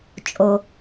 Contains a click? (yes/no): no